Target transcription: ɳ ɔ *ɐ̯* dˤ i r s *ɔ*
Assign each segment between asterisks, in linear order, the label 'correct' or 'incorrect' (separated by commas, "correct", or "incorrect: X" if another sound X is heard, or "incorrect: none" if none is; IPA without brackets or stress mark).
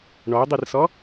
incorrect: o̯, correct